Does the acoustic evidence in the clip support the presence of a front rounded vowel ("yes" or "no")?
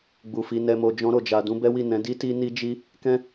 no